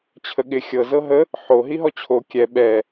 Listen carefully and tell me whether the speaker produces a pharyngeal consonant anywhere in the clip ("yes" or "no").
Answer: yes